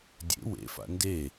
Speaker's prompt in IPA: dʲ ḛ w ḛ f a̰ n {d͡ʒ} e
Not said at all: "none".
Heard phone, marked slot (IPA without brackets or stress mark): d